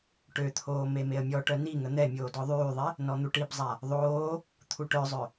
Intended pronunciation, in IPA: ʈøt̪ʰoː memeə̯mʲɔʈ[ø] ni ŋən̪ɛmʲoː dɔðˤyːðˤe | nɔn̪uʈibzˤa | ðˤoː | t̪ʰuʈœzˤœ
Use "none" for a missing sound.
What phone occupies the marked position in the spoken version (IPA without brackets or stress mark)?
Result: œ